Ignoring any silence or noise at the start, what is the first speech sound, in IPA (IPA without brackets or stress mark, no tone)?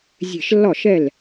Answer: zʲ